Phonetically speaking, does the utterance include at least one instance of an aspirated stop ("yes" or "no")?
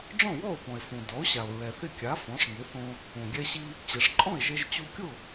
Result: no